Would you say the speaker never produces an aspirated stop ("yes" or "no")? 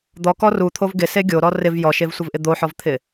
no